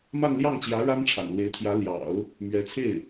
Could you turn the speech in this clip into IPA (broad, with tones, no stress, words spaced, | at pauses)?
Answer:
ma˥˧nljɑ˥˩ŋt͡ɕjä˧˥ ɻa˥nʈ͡ʂʰa̰˨˩nlwe˧˥ɪ̯t̪ʰjä˧˥ ljɑ̰˨˩˦ʊ̯ | mɥɛ˧˥t͡sʰe˥˩ɪ̯